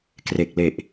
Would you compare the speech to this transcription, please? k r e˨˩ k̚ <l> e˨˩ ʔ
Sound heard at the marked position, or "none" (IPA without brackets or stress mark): l